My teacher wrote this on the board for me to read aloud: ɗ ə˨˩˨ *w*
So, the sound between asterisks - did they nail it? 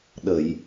no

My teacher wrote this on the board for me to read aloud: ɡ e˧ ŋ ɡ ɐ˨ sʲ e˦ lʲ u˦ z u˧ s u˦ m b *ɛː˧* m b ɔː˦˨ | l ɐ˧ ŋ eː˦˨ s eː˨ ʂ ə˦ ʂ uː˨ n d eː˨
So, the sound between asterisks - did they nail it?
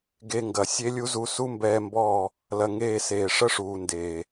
yes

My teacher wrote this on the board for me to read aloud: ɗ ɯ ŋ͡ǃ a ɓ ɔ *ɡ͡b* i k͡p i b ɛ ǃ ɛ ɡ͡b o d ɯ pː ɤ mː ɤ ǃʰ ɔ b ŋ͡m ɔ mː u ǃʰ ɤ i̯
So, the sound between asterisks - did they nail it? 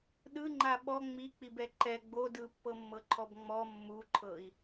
no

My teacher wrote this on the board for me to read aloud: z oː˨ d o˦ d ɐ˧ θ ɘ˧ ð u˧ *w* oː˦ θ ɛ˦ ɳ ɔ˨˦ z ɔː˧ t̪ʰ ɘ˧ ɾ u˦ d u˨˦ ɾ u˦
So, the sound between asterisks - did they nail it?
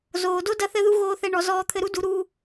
no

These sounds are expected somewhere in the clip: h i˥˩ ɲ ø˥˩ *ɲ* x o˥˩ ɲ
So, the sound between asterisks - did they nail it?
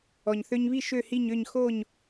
yes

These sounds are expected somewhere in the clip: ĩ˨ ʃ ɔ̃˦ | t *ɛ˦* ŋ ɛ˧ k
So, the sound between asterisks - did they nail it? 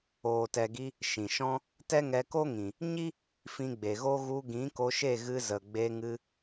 yes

